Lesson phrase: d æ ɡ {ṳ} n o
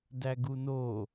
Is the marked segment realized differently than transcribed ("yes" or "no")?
yes